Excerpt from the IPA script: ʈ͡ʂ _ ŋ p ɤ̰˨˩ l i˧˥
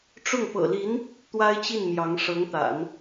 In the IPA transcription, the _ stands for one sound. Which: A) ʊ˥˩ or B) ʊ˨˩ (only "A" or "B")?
A